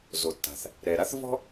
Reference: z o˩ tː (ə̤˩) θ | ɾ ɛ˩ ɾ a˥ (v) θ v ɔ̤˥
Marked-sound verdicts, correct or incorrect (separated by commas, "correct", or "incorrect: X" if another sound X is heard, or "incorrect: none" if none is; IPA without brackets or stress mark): incorrect: a̤˩, incorrect: none